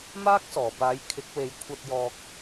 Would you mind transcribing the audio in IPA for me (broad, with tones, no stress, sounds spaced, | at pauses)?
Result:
m aː˥ k̚ s ɔː˨˩ p aː˨˥ j kʰ ɪ˨˥ k̚ w e˨˧ j kʷʰ ɐ˧ t̚ j ɔː˧ k̚